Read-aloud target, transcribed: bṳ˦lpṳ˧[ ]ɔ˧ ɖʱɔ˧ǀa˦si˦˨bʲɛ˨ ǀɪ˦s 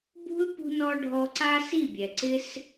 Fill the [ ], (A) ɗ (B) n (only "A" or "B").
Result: B